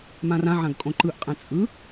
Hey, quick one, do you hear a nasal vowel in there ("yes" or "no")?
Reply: yes